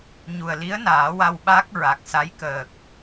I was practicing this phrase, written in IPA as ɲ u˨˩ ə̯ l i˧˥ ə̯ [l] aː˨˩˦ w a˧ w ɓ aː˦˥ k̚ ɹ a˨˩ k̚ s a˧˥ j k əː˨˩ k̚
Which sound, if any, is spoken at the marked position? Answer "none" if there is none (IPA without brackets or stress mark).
n